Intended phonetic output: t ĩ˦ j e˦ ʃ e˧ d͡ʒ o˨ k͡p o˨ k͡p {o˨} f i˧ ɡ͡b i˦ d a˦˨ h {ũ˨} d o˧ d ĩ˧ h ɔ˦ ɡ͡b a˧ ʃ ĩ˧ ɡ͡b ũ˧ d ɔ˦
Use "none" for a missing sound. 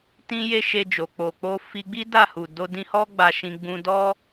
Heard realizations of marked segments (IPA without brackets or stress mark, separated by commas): o˧, u˨